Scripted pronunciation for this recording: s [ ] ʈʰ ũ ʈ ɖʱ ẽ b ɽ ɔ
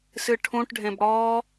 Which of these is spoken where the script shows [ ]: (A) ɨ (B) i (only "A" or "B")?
A